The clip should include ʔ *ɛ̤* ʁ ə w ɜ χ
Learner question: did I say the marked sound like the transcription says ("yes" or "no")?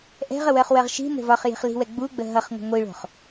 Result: yes